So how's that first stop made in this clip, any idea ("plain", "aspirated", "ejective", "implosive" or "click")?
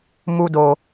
plain